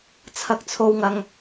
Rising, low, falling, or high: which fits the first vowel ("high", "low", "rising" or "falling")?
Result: high